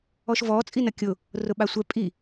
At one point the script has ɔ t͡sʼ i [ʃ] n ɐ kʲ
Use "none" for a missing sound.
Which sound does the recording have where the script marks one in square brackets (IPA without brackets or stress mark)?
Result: none